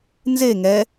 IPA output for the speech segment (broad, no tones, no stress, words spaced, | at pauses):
nze ŋɛ